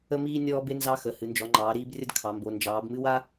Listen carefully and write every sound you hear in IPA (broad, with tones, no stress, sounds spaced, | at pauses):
ə˥ m iː˥ nʲ ɔː˥ b e˥ n z ɑ˥ x ə˩˧ h ɨ˩˧ n d͡ʒ ɔ˩˧ ŋ͡ǃ ɑː˩˧ ɾ iː˥ b rʲ ə˥ d kʰ ɑ˩˧ m b o˩˧ n d͡ʒ ɑː˩˧ b m ɨ˥ w a˥